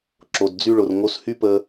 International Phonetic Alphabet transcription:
ǁ o˨ d d͡z y˧ ɭ ʊ˨ r ŋ o˧ s h y˦ p ə˧

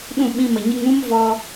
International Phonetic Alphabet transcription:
ɗ ũ˦˨ ɓ ĩ˧ m ə˨ ɲ ɨ˧ ŋ ũ˦ m v ɔ˧

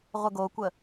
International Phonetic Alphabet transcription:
ʁʷ ə ɡ o kʷ ə

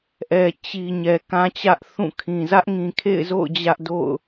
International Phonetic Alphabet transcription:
ʔ ɛ˨ t͡ɕ i˨ ɲ ɛ˨ k ã˦ t͡ɕ ä˦ ʔ θ ũ˦˨ kʰ ĩ˨ z ä˦ ʔ ŋ ĩ˨ kʰ ḛ˦˨ ɪ̯ z o̰˦˨ ʊ̯ d͡ʑ ä˦ ʔ d o̰˦˨ ʊ̯

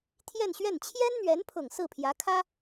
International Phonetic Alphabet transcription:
t̪ʰ j ɛ˥˧ n ɕ ɥ ɛ˥˩ n t͡ɕʰ j ɛ˥ n n̪ ɥ ɛ˧˥ n pʰ ʊ˨˩ ŋ s ɹ̩˥˩ pʰ j ä˧˥ kʰ ä˥

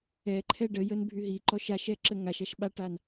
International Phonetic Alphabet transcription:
ɛ ǃʰ ɛ ɖ ə j ə n bʱ y ɦ i ǃ ɔ ʃ a ʃ ɛ ǁ ə ŋ a ʃ a ʃ ɓ a ʈ a n

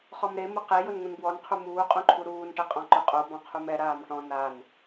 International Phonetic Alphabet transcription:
χ ɔ m ɾ e m ʊ q e j ʊ n ŋ ũ n b w ɔ n qʰ u m uː qʼ ũ ǃʰ u ɾ uː n ʈ ɛ qʼ ɔ̃ ǃ ʊ qʼ o b ɔ̃ qʰ u m ɛ ɾ aː m ʈ ɔ̃ n a n

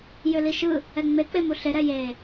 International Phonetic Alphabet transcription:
j ʏ l i ʃ ɯ | ɛ ŋ͡m e k͡p e m u ɬ e ɾ ɛ j e

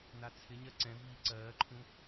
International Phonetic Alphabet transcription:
n a t͡sʰ ɪ ɲ ɜ ǀ ɛ̃ v iː ǀ ɜː ǃʰ ũ

